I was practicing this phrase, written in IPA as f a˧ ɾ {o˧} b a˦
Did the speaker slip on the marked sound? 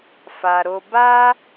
no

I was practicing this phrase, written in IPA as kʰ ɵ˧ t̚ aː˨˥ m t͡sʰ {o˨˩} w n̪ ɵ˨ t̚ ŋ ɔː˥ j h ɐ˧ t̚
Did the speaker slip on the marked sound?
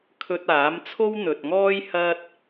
yes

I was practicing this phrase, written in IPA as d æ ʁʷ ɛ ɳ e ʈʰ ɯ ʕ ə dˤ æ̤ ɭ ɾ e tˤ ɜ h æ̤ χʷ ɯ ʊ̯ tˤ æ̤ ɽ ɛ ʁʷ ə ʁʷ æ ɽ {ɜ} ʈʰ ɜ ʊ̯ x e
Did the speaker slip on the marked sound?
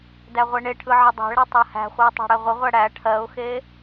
yes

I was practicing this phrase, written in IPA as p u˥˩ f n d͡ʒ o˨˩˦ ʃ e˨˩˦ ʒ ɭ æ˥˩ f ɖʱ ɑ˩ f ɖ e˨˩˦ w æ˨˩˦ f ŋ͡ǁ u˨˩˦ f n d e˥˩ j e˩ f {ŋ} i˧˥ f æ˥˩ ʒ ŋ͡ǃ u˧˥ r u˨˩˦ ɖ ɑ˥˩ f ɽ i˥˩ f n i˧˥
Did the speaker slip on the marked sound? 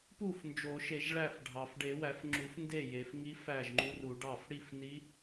no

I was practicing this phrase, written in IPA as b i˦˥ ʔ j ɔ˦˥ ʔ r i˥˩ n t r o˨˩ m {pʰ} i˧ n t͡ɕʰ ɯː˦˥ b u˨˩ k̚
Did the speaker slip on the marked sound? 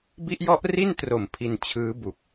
no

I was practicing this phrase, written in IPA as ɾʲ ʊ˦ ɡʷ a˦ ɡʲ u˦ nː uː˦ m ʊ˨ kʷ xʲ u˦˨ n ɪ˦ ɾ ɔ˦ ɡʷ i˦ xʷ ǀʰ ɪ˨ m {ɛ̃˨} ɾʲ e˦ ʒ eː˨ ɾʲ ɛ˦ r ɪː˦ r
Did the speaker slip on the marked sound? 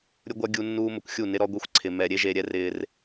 yes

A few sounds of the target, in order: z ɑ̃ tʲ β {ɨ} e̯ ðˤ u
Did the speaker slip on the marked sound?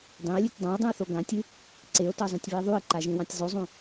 no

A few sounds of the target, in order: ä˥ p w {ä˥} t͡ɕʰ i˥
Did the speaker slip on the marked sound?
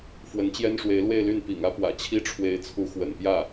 yes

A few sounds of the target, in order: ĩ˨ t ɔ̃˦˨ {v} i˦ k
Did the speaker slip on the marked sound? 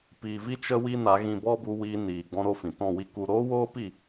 yes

